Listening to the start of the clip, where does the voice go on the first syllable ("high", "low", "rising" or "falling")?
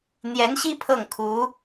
rising